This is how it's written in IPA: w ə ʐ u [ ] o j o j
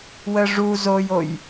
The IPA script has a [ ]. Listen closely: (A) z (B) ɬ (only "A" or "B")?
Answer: A